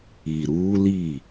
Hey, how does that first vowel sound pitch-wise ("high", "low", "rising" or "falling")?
low